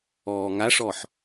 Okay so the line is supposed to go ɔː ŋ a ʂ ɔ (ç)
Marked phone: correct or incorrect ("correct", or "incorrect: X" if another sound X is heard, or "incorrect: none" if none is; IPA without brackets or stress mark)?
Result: incorrect: ħ